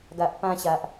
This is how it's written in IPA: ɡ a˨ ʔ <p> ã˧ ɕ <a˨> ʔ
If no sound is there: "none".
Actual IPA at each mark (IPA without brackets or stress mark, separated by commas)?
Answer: p, a˨